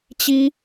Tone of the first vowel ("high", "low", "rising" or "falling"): high